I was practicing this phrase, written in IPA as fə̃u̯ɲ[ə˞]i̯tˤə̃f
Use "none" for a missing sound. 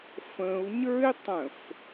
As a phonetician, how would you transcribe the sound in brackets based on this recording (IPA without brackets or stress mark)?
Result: ə˞